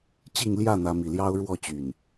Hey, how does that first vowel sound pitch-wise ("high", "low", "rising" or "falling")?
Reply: falling